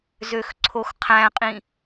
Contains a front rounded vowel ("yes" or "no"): yes